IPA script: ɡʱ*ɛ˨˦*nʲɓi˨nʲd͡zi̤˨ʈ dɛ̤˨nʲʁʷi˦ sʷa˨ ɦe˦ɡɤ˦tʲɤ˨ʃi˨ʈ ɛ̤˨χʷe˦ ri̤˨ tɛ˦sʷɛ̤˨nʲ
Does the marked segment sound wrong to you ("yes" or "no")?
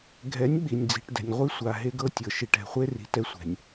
no